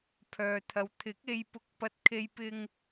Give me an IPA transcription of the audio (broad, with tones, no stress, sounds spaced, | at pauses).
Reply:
pʰ œː˨ t̪ʰ ɐ˨ w t̪ʰ ɪ˨˥ k̚ e˧ j p ʊ˧ k̚ p ɐ˧ t̚ kʰ e˧ j p ɪ˧ ŋ